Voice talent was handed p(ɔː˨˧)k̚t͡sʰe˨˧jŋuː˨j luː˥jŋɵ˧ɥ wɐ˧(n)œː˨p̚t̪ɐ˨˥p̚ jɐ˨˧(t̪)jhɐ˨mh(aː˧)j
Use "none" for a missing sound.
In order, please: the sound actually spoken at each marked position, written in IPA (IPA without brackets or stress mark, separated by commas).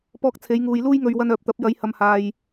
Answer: ɔː˧, n, none, aː˨